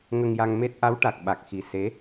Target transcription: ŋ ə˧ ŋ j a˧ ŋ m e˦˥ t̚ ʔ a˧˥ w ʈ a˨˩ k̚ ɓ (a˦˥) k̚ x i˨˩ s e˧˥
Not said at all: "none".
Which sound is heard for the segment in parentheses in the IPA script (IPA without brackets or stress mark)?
a˨˩